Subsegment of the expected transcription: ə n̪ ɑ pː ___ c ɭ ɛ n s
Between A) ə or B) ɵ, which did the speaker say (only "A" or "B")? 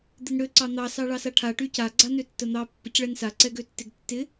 A